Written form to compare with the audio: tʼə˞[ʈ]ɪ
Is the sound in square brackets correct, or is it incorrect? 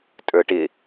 correct